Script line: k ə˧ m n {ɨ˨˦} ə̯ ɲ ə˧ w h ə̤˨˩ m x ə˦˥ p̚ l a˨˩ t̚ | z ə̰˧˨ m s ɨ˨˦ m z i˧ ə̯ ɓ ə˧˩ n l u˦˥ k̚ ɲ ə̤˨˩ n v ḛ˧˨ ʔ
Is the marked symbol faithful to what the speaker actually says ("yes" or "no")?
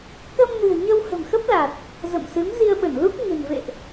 no